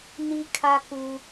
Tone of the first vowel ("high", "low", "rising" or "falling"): high